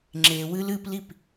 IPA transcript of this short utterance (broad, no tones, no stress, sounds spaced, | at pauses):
ŋ͡ǁ e w ɨ l ɨ p l i p